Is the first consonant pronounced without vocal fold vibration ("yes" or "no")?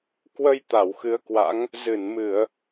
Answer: yes